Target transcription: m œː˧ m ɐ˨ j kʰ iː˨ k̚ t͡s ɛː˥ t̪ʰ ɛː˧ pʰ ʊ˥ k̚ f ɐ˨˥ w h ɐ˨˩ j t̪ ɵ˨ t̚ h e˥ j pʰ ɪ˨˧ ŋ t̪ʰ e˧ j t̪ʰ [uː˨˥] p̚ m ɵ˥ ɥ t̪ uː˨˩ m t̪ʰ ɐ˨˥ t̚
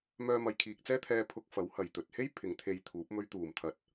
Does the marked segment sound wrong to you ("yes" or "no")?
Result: no